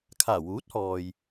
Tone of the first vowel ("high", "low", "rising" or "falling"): low